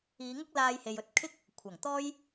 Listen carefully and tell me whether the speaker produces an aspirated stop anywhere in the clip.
yes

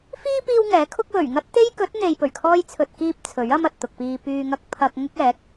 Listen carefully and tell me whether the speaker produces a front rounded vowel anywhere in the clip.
yes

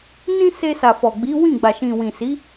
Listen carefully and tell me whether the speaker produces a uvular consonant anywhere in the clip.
no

